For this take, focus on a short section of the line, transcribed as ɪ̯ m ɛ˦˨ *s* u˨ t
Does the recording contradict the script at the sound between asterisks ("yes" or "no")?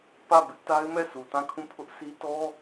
no